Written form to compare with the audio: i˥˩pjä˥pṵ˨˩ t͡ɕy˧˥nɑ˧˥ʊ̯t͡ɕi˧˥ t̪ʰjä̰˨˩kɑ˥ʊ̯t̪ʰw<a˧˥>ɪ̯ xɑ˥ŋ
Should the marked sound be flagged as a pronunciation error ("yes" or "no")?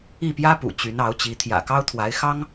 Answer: no